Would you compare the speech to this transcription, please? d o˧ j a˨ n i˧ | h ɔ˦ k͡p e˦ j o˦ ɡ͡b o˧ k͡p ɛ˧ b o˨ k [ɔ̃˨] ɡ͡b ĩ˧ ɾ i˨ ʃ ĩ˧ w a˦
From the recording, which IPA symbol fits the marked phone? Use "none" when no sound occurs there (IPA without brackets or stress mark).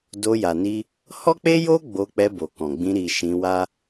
ɔ̃˨